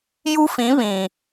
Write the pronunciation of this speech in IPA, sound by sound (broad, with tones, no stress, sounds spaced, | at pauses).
j u˦ f ĩ˨˦ β ĩ˨